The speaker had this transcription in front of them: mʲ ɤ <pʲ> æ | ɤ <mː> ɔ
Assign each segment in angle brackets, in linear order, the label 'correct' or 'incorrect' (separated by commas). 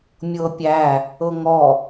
correct, incorrect